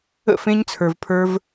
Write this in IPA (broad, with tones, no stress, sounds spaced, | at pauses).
ə̰˦˨ f ẽ˦ ɲ t͡sʰ ə˞˧ v pʰ ə˞˦ v